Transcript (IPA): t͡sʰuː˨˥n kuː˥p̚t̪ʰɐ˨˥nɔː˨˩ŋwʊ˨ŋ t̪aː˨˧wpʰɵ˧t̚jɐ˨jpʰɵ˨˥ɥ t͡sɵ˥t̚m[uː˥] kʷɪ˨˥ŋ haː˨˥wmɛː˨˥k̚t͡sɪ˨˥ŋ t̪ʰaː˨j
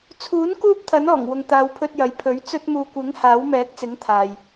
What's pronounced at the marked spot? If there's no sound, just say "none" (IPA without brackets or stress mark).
uː˧